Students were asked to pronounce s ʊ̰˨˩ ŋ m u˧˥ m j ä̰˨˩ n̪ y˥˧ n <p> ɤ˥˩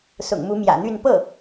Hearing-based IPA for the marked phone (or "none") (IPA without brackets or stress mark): p